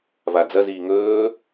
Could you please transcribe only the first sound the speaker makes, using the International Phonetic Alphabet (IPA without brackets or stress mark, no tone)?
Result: v